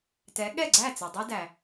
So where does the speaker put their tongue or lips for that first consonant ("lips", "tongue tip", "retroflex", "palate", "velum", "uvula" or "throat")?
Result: tongue tip